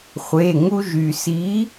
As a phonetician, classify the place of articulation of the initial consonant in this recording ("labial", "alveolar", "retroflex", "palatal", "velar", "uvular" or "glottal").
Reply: uvular